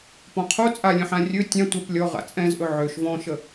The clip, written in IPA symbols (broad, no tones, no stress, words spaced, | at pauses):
pɔ̃qʰo t͡sʼalʲə̃ħã rʲɵ tʲã tʷəp lʲɔ ʁa̰t͡sʼɛ̃zʔɵ ʕøʃ vɔ̃ʃə